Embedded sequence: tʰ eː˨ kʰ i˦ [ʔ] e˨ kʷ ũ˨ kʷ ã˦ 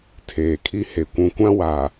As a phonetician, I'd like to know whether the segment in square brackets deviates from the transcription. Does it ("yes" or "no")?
yes